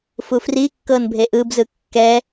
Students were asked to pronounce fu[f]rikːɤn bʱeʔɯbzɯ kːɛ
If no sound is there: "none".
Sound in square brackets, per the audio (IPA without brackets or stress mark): f